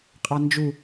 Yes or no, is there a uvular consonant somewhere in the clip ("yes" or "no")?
yes